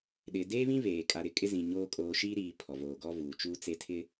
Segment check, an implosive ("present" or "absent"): present